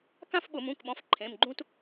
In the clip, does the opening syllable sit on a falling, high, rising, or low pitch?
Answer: falling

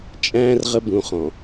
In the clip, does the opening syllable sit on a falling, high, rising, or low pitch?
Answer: low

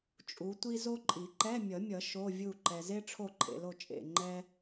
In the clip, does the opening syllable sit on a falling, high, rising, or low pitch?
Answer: rising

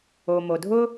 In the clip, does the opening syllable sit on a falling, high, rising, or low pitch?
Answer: low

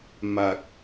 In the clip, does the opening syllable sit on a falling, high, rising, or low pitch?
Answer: low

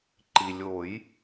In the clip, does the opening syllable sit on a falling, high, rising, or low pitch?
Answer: low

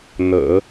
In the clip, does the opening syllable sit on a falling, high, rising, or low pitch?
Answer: low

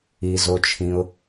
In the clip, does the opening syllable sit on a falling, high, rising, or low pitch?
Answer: low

